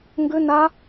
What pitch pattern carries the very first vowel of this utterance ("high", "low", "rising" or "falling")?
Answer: high